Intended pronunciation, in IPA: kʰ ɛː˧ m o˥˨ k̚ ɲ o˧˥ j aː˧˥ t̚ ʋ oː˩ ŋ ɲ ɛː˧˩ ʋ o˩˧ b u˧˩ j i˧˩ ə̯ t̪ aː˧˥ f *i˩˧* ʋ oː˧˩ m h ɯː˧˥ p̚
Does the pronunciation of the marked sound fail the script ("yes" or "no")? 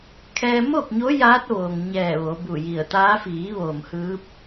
yes